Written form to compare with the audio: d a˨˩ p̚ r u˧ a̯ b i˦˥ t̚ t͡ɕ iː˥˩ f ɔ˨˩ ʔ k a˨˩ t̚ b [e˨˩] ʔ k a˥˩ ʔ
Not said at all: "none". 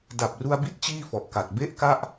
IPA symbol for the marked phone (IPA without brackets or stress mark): e˥˩